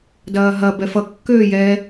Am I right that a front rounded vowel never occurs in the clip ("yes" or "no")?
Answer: no